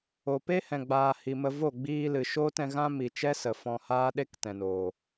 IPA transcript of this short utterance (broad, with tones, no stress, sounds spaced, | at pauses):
o˨ p e˦ h ɛ̃˨ ɡ͡b aː˨ h i˨ m ə˧ v o˦˨ ɡ͡b iː˧ l ɨ˨ ʃ oː˦ t ɛ̃˧ ɣ ã˦ m i˨ t͡ʃ ɛ˦ s ə˨ f ɔ̃˧ h aː˦ ɗ e˦ k t ɛ̃˨ n oː˨